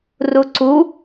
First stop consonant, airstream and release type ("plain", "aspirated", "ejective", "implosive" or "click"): click